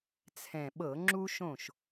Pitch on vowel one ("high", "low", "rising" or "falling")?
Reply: low